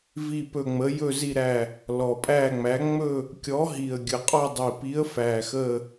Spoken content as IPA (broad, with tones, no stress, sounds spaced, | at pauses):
v i˦˨ p ɵ˦˨ ŋ͡m ə˨˥ j ɵ˦˨ z i˦˨ ɾ æ˦˨ | l ɔ˨˩ pʼ æ˦˨ ŋ͡m æ˨˥ ŋ͡m ɵ˦˨ | kʲ ɔ˨˥ ɦ i˨˩ ə̯ ɡʲ ə˨˩ qʼ ɔ˦˨ dˤ i˨˩ p i˨˥ ə̯ f æ˨˩ x ə˦˨